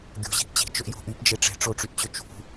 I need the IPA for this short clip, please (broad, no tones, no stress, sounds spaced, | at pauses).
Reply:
ɡʲ o̤ ʑ i̤ ʔ t͡ɕ i̤ t͡ʃ ɵ ʔ j o̤ ʔ y p d͡ʒ e ʈ͡ʂ e̤ ʈ͡ʂ o ʈ͡ʂ y ʔ t͡ɕ ɵ t͡ʃ ṳ